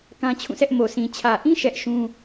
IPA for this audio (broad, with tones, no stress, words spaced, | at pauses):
kã˦t͡ɕʰũ˦˨sɛ˦ʔ mo˨sʰĩ˨ t͡ɕʰä˨ʔĩ˦ ʃɛ˦ʔʃũ˦